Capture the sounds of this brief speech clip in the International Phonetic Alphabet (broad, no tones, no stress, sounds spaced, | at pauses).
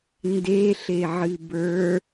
n d e ɬ e ʕ ɨ b ə˞